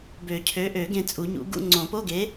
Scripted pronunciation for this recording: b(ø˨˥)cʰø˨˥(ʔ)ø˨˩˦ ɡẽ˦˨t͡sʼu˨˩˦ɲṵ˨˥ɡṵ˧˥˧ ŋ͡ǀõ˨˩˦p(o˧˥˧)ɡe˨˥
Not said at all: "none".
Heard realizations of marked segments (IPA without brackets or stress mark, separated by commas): ø˨˩˦, ʔ, o˧˥˧